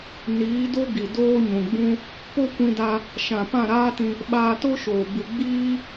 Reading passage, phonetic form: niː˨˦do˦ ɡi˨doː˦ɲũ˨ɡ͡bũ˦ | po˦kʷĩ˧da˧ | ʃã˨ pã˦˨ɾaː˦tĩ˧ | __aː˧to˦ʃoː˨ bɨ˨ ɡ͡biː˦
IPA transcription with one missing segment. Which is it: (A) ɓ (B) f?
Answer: A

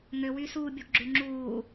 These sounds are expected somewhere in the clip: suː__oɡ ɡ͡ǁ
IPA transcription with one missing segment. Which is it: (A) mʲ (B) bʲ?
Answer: B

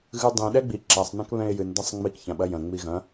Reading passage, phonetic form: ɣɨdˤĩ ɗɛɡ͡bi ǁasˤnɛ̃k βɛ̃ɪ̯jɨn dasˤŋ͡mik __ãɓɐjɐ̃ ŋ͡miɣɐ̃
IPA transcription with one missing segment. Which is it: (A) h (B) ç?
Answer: B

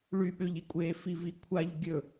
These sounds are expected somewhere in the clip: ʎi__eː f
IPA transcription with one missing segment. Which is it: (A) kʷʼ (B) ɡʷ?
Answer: A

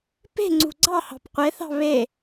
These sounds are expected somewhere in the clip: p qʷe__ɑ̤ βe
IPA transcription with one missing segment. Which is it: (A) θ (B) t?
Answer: A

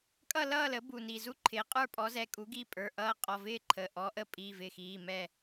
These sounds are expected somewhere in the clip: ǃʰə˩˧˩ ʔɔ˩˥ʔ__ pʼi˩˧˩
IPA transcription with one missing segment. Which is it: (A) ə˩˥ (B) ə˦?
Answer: B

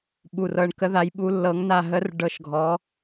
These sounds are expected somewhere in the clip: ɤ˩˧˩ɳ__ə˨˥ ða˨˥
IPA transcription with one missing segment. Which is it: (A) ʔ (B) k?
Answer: B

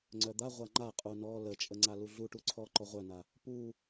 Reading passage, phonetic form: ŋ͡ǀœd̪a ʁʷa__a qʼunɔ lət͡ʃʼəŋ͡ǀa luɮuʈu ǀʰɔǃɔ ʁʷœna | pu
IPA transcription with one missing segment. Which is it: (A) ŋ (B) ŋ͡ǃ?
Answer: B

